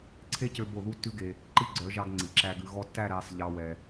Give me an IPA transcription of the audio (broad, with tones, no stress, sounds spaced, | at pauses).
ǀʰ e˦ c ø˧ b o˦˨ ð u˦ tː ʉ˦ ɡ e˧ | ǃ i˦˨ ɡ͡ǀ œ˨˦ ʒ ɑ˧ ɡ ŋ͡ǀ i˨ ǁ æ˧ ɡ ʉ˨ ɣ ɔ˧ tː æ˦˨ ɾ æ˧ sˤ ʎ ɑ˧ w ɛ˨